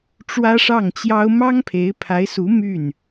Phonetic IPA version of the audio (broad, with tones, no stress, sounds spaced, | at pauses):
ʈ͡ʂ w ä˥ ʂ ɑ˥˩ ŋ t͡ɕ j ɑ˥ ʊ̯ m ɑ˥ ŋ pʰ e˧˥ ɪ̯ pʰ a˧˥ ɪ̯ s u˧˥ m y˥˩ n